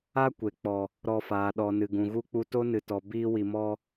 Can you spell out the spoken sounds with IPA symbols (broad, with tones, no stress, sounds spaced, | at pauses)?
a˦ kʷ e˨ k͡p ɔ˨ | ɾ ɔ˧ f aː˨ ɗ ɔ˨ n ɨ˨ ɡ ũ˨ ɣ u˦ k͡p u˦ t o˦ n ɨ˨ t ɔ˨ b iː˧ w i˨ m ɔ˧